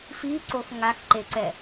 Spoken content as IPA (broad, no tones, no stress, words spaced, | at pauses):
fiǀox ŋaxǃeǀɛ